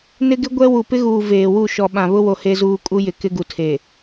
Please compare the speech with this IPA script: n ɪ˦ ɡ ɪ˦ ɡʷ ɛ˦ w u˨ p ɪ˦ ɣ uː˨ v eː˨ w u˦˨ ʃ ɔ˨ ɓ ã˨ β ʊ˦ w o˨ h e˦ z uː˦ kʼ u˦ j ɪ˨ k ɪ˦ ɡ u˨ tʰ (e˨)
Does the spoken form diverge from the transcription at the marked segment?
no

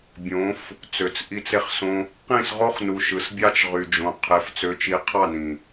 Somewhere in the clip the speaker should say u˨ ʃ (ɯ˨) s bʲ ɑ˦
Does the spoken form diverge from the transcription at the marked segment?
no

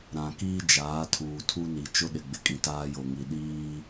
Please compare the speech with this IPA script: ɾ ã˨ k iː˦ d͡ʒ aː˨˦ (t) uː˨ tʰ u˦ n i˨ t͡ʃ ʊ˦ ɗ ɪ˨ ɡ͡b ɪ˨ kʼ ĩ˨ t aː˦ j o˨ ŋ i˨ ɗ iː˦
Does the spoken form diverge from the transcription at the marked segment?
yes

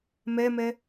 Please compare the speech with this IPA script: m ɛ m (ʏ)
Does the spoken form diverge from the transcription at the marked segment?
yes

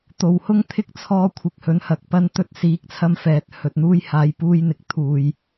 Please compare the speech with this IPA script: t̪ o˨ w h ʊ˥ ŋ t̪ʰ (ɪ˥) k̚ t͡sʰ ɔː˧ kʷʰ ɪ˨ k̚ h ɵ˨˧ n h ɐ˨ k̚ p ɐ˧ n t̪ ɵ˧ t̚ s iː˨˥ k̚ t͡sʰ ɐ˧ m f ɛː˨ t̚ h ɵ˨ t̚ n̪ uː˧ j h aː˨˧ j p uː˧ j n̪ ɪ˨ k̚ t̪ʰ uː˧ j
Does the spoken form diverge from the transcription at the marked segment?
no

